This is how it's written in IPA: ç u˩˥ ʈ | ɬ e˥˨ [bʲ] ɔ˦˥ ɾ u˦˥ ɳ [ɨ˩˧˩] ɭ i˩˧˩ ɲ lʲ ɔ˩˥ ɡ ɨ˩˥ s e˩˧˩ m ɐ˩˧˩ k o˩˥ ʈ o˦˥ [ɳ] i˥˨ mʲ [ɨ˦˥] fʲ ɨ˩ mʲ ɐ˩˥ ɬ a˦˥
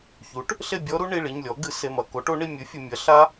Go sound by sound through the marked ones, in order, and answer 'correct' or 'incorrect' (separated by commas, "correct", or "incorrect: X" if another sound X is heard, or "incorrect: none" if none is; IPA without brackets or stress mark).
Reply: correct, incorrect: i˩˧˩, correct, incorrect: ɨ˩˥